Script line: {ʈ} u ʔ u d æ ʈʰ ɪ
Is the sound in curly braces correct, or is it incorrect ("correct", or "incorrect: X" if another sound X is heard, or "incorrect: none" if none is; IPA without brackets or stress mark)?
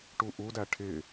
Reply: correct